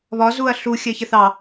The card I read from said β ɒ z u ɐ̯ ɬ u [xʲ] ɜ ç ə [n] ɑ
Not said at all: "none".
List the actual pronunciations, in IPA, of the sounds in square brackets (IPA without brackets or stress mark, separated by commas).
xʲ, θ